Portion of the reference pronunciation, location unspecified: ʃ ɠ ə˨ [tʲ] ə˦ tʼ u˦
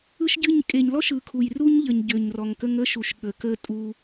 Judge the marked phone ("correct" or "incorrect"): incorrect